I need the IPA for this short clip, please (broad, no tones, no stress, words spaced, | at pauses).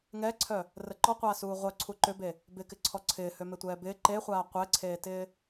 ŋɛǀʰœ | rəǃɔqʷaː suːʁʷœ ǀʰuǃʏbe | bɪkɪǀʰɔ ǀʰɪːhømɪ tʷɛːbɪː ǃeχʷaː qʷɛǀʰeːtɪː